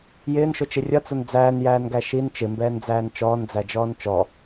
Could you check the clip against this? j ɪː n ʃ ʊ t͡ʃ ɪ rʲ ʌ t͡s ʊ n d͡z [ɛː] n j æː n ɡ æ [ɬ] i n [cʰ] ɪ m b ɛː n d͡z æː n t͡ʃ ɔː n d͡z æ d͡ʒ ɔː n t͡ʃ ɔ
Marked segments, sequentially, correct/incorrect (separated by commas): incorrect, incorrect, incorrect